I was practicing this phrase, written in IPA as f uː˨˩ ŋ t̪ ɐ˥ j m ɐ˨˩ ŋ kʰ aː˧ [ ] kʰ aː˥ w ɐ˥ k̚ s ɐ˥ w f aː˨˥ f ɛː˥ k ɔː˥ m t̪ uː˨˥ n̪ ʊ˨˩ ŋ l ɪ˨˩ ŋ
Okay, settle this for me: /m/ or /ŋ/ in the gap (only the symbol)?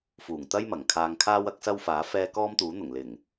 ŋ